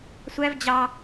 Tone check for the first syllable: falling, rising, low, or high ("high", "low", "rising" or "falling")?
high